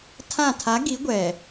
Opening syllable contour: falling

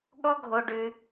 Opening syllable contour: high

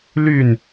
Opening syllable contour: falling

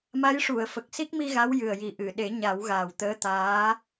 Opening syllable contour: rising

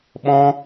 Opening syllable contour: high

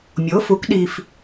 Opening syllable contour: rising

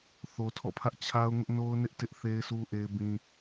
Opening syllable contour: low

